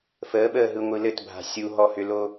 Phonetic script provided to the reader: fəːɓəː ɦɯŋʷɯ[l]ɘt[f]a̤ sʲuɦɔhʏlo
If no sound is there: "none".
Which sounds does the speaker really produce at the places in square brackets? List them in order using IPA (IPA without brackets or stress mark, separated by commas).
l, bʱ